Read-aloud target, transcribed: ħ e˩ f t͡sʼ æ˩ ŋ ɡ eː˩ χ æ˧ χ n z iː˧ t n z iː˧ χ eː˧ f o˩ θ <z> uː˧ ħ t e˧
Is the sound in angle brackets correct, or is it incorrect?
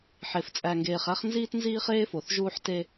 incorrect